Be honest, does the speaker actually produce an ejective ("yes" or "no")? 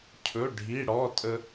yes